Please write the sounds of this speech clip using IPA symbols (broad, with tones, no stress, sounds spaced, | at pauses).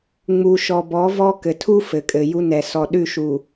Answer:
ŋ͡m u˨ ʃ ɔ˨ b ɔ˨˦ v ɔ˦ k ɘ˨ tʰ u˦ f ɘ˨ kʼ ɘ˨ j u˦ n ɛ˨ s ɔ˨ ɗ ʉ˦˨ ʃ u˨